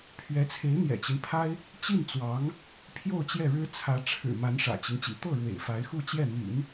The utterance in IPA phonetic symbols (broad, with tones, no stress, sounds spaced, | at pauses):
pʰ ɥ ɛ˧˥ t͡sʰ e˧˥ ɪ̯ n̪ j ɛ̰˨˩ t͡ɕ i˦ n pʰ a˥ ɪ̯ | t͡ɕ i˥˩ n t͡s w ɑ˧˥ ŋ | pʰ j o˥˧ ʊ̯ t͡ɕ j ɛ˥˩ ɻ ɻ̩˥ t͡sʰ ä˧˥ ʈ͡ʂʰ ɻ̩˨˩ m a˧˥ n ʂ ä̰˨˩ t͡ɕ i˦ ŋ t͡ɕ ḭ˨˩ t̪ ɤ˥˩ ɻ w ḛ˨˩ ɪ̯ f a˧˥ ɪ̯ x u˥˧ t͡ɕ j ɛ˥˩ n̪ y̰˨˩˦ n